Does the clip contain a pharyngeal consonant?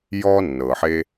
yes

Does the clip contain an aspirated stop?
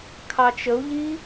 yes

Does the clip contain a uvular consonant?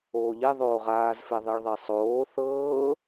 yes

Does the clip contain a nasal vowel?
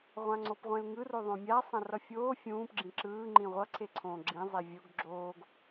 yes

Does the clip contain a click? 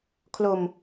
no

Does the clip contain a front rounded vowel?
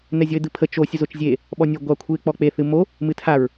no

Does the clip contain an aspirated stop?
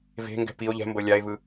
no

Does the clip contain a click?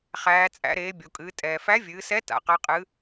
no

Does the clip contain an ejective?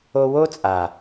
yes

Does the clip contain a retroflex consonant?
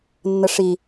yes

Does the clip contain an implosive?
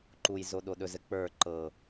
yes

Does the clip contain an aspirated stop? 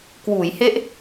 no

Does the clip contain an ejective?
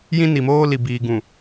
no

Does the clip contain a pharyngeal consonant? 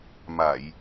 no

